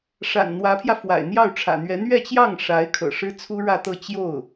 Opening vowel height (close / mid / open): open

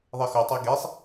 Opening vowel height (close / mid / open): mid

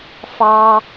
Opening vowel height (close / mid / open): open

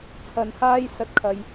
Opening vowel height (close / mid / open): open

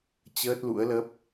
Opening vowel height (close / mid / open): mid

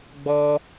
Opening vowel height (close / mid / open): mid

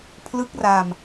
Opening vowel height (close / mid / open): close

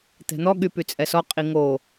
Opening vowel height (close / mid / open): mid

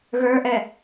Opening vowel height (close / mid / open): mid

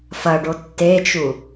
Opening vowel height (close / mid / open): open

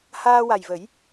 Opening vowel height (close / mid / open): open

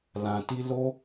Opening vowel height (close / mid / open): open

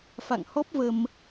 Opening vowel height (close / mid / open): open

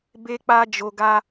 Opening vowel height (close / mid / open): mid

